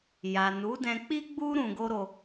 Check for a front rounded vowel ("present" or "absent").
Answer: absent